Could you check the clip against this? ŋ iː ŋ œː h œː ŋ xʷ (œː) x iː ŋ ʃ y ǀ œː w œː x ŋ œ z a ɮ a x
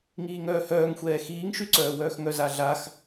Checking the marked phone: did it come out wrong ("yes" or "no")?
yes